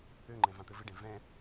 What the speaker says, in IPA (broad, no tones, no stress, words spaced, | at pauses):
øŋ͡ǃɛ̃ vãt̪ɘvɘɖɛ̃ vɛ̃